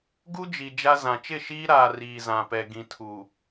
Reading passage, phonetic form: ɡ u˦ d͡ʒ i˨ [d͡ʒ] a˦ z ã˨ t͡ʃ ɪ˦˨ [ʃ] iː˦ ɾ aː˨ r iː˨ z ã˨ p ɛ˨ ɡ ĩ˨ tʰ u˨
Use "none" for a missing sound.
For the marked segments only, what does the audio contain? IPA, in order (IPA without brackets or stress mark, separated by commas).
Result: d͡ʒ, ʃ